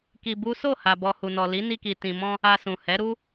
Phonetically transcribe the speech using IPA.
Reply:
ki˧bu˦ so˦˨ ha˧bɔ˧ hu˨nɔ˨ li˨˦ni˧ki˨ tĩ˨mɔ̃˧ | a˧sũ˨hɛ˨˦ɾu˦

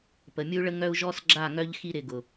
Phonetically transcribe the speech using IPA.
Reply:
pə˨mʲu˦ɭə˦ ŋœ˦u̯ ʒɔ˦s ɡ͡ǁa˦˨ŋœ˦ʎ xi˦ɾɪ˨ ɡʊ˨

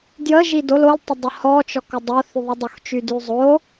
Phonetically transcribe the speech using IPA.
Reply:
djə ʒidol oltˤədˤə hɔt͡ʃɔk odˤoθyðˤi dˤoxt͡ʃydyzˤo

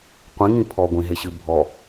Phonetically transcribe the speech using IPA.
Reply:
qʷĩŋĩ pʰɔɡʷĩɦeɕɨ bʱɔ

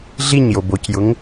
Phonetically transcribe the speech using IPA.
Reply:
ɮiɲjob ocjʊŋ

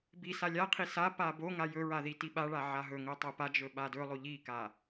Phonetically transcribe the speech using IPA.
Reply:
bi salʲaqʰi sa paboŋa jɵɹa ðitiɓaɭa ʕaɦɵŋɵ tˤopad͡ʒɵ ɓadɵlˠo ʎika

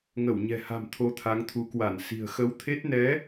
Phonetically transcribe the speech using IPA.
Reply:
ŋə˧˩wɲɛ̤˨˩ha̤˨˩m t̪ʰo˧t̪ʰa˨˦ŋt̪ʰu˨˦ kwa˧˩nsi̤˨˩ə̯xə˨˦w t̪ʰe˦˥t̚ nɛ˨˦

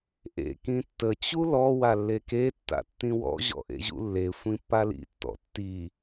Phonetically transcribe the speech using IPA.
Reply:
ʔḛ kĩtːə t͡ɕulɔ walːeke tːa̰tːĩwɔ̰ ʑɔ̰ʔḛʑṵlːe sʷĩpːalḭ tːɔ̰tːi

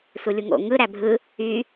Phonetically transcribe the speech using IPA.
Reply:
sulʲuŋo̰ ŋɯ ɾæbʱɯ | y

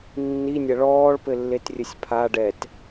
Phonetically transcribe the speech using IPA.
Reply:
nːinʲɐ ɭɔːɭpɘlːet rʲɘsʲpʰa ɖɛt

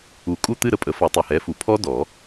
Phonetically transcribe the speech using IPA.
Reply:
u˨˩˦kʼu˥˧t̪ɨ˥˧ ɾə˥˧pʼə˩˥ fɔ˨˩˦tˤɨ˨˩ hɛ˩˥fu˨˩pʰɔ˦˥ dɔ˨˩˦

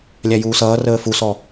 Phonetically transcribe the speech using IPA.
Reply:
lʲæjuːsʌː rəːfusɔ

